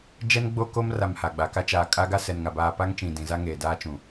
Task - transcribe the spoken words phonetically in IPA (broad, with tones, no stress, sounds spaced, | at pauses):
d͡ʒ ɛ˦ n ɡ͡b o˦ k o˦ m r a˨ m h a˨ ɡ͡b a˨ k a˦ t͡ʃ aː˨ kʼ a˦ ɡ a˦ s ɛ˨ n ŋ a˨ b aː˦ p a˦ ŋ t͡ʃ ĩ˨ d ĩ˨ z a˦ ŋ eː˨ d aː˦ t͡ʃ ũ˨